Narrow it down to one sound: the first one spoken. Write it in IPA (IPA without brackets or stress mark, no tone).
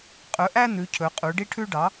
qʼ